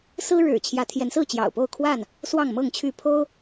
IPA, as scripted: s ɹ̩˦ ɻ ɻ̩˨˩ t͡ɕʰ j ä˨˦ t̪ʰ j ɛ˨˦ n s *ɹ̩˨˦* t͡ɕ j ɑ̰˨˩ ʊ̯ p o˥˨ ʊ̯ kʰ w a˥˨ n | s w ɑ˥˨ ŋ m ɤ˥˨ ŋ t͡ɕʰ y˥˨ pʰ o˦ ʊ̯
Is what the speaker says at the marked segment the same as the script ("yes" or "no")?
no